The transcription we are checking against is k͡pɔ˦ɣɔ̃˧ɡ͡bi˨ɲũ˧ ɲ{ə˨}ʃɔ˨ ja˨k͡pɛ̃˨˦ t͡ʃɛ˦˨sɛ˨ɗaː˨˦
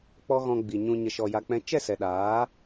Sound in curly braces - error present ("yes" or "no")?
no